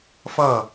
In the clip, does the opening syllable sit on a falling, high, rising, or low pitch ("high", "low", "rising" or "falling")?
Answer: falling